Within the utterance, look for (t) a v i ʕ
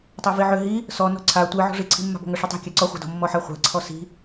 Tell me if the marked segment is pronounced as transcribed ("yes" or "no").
no